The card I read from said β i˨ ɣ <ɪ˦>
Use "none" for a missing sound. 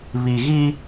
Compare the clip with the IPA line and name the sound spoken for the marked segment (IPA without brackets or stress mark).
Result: i˦